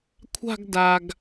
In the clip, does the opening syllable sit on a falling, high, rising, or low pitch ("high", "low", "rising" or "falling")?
falling